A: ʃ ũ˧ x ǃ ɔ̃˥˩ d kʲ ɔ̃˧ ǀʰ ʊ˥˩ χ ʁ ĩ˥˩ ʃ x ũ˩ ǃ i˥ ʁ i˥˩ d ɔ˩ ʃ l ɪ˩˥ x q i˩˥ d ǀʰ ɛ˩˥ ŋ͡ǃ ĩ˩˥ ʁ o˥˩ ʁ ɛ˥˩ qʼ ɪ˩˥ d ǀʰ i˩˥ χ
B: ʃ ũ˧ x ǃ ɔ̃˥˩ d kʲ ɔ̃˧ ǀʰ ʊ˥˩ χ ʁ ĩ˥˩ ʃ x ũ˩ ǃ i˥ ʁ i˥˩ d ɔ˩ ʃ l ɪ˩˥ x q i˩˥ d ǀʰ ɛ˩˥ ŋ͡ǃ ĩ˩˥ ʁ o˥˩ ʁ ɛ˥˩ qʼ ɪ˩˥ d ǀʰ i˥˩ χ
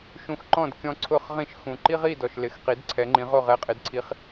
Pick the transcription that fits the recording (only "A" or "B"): A